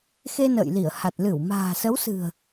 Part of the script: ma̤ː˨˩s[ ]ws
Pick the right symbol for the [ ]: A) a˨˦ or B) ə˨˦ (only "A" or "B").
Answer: B